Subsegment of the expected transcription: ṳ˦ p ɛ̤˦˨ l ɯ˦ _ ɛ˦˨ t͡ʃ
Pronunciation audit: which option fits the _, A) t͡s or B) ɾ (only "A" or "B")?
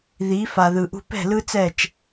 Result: A